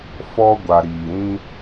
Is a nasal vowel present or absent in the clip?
present